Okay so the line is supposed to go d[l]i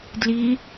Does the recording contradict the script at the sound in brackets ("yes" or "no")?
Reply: no